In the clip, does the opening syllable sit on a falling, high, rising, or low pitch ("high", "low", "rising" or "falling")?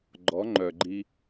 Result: rising